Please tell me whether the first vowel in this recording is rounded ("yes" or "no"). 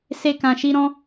no